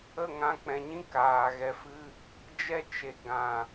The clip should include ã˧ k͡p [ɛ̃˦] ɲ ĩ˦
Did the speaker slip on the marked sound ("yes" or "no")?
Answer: yes